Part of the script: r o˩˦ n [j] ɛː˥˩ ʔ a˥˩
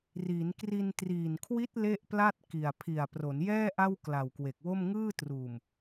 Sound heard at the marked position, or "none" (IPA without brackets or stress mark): j